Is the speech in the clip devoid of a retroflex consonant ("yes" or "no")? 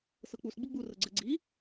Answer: yes